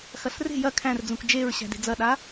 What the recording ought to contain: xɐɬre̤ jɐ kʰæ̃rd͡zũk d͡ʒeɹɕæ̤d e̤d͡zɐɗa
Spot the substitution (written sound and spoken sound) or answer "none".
none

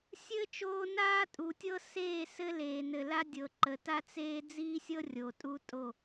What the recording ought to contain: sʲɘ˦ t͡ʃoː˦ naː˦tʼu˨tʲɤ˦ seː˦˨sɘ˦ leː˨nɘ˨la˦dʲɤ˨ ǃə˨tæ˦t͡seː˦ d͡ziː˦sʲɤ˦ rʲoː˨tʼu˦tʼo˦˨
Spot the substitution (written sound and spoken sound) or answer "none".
æ˦ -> a˦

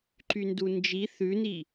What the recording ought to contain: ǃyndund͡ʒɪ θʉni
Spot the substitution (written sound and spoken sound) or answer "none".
ɪ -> i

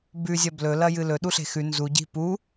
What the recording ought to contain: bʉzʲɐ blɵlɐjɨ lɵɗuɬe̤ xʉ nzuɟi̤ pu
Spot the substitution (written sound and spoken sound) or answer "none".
none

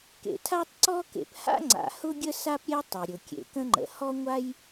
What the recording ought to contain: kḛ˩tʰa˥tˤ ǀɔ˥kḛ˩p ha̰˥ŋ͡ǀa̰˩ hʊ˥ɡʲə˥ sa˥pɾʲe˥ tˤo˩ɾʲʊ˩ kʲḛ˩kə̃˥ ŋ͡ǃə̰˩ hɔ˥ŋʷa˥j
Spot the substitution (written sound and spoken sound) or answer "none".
none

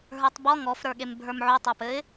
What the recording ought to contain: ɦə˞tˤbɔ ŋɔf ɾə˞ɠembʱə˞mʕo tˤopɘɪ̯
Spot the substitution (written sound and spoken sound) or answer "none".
none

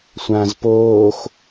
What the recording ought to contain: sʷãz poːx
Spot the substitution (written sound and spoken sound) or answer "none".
none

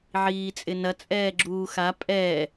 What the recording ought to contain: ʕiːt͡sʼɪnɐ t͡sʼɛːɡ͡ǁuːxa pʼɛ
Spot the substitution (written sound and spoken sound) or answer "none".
none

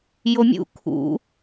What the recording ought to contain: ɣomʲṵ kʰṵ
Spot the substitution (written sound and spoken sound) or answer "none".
ɣ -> j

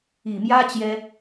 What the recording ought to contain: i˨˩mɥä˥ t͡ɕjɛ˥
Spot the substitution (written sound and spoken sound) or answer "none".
ɥ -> j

